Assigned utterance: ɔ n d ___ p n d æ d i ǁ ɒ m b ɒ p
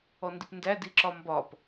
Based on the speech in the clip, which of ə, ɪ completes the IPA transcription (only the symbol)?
ɪ